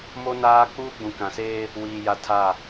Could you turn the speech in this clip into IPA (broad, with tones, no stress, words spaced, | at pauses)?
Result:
mo˦ naː˦ k͡puː˦ɡ͡bũ˨kã˨seː˦ | wiː˨ja˨ tʰa˦˨